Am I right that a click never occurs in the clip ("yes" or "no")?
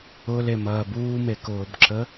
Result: no